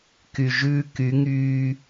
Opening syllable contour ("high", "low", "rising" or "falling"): low